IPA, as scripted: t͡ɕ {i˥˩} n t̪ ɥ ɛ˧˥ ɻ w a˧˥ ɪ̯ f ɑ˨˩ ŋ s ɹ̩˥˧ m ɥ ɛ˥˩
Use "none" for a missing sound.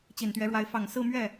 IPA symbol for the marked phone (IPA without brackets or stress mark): i˨˩